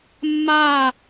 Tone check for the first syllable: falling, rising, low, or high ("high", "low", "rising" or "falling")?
falling